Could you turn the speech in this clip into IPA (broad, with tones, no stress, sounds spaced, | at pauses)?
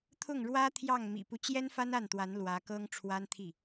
t̪ʰ ʊ˥˩ ŋ ɻ w ä˥ t̪ʰ j ɑ˥˩ ŋ m ḭ˨˩ p u˦ t͡ɕ j ɛ˥ n f a˥ n a˥˩ n t̪ w a˧˥ n l w ä˧˥ k ɤ˥ ŋ ʈ͡ʂʰ w a˥ n t̪ʰ i˥˩